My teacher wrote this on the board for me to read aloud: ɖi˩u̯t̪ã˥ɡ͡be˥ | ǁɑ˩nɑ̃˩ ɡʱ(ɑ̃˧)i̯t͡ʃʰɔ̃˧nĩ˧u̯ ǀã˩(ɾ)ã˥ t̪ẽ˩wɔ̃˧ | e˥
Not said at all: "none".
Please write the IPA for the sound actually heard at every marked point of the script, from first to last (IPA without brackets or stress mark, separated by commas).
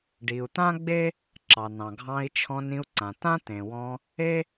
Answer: ɑ̃˧, t̪